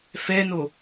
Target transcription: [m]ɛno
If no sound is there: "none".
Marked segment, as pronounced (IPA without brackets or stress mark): f